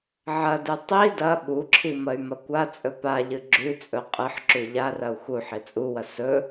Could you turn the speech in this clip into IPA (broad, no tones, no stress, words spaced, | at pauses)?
ʕɐdɨ tˤi dɐ ɓuǁʰi mɐy̯mɐkʷat͡sʼɵ paʎɨ ɡ͡ǁʉt͡sʼɵ qʼɨħǁʉ ʎarɐu̯ xu ħit͡sʼuwɐ sɵ